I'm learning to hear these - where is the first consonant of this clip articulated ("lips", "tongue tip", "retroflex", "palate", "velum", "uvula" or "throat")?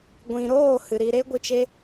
velum